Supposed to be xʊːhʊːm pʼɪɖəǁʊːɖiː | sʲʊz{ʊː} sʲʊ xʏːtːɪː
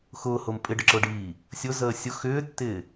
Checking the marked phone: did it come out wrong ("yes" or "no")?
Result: yes